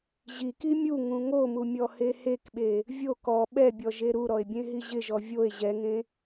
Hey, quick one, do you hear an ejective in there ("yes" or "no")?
no